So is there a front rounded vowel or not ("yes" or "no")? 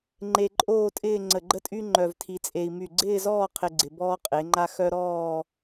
yes